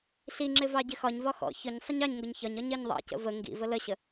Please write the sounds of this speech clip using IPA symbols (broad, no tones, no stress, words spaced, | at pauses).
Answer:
ɬiŋ͡ǁɪ vɑɟɪxɒɲvɒ xɔ̰ çʊɲ sˤəɲɑɲŋɡʊɲ çɒɲɒɲ ɜɲðˤɑ̰cə̰ və ŋɡḭvə ləɕə